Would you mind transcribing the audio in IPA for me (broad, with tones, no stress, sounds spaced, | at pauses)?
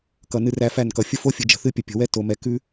k ʌ˨ n ɨ˦ r æ˦ f æ˦˨ n k ʌ˨ fʲ ə˦ f o˦ fʲ ɨ˨ d͡ʒ ə̤˨ θ ɨ˦ pʲ ə˨ pʲ ə̤˨ w ɛ˦ t o˨ m ɛ˨ k ʉ˦